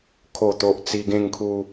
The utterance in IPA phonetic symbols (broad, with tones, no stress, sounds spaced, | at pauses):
kʰ o˨˩ t̪ o˨ ʔ t͡s i˧ ɡ ẽ˥˧ ŋ kʰ u˧